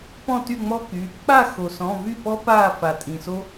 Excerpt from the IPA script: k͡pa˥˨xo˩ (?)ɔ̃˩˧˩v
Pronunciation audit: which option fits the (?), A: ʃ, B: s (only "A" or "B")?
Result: B